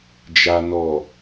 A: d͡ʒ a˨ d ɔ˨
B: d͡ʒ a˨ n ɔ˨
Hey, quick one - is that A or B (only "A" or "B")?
B